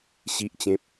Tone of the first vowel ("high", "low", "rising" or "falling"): low